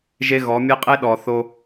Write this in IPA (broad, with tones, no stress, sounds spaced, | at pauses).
ʒ e˦ ɣ ɔ˨˦ mʲ e˦ qʼ e˦ ɗ ɔ˨ θ o˦